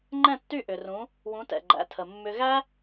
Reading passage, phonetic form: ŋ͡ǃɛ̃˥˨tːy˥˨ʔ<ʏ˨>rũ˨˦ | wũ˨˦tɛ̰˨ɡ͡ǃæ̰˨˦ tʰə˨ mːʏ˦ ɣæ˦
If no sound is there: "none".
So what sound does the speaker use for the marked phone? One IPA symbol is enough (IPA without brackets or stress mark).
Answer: ʏ˨